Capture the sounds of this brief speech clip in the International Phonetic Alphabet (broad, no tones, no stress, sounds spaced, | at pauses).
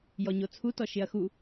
j ɔ ɲ o t͡sʰ u t ɔ ʃ ɪ ɐ̯ x u